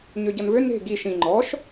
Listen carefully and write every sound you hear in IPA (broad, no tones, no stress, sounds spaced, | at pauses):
ɲ ø ɟ ʌ n v ø n e̤ ɡ i ʃ ĩ ŋ͡ǃ ɔ ʃ